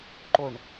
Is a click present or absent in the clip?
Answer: present